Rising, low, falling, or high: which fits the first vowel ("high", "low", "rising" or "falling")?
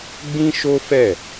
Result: high